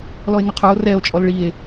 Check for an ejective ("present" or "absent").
present